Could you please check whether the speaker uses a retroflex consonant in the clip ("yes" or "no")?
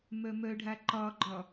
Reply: yes